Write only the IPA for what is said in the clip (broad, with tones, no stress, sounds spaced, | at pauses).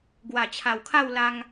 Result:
ɡ w a˨˩ t͡ɕʰ a˨˩ w kʰ a˥˧ w l a˧ ŋ